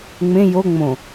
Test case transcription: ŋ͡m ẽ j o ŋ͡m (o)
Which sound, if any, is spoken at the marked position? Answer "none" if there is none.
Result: õ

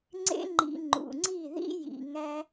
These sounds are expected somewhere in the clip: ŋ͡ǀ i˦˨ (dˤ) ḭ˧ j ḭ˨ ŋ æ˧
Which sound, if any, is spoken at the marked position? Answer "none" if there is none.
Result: ð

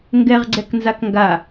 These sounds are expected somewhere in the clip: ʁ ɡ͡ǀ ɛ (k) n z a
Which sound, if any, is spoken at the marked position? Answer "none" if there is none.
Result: k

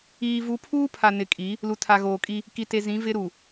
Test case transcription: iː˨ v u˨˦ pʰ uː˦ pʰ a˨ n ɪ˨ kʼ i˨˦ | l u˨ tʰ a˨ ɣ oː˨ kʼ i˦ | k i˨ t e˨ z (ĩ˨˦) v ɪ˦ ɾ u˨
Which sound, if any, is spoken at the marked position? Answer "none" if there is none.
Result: ĩ˨˦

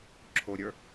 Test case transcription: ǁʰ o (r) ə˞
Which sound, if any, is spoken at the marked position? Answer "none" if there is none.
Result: ɾʲ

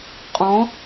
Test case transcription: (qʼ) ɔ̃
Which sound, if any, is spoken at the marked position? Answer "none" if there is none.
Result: qʼ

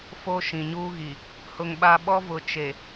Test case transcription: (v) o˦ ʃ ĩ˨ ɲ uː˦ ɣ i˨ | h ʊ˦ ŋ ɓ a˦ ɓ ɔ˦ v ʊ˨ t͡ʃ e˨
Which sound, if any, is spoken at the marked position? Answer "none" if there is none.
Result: f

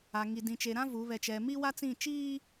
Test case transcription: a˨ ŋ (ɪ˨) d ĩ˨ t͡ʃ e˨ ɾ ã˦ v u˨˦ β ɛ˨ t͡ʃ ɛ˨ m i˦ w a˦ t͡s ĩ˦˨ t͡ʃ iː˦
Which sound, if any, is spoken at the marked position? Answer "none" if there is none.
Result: i˨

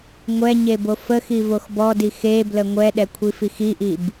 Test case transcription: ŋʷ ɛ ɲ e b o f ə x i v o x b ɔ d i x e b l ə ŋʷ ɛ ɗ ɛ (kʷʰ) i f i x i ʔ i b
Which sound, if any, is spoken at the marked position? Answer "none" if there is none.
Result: kʷʰ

